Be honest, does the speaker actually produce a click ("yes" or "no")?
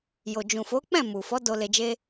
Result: no